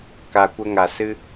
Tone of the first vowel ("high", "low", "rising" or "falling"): low